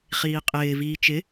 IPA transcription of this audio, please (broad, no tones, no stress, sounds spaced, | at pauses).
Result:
χ iː qʼ ɪː v iː t͡ʃ ɪ